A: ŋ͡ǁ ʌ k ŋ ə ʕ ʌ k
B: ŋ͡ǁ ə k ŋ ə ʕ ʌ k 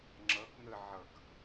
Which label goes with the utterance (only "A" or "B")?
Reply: A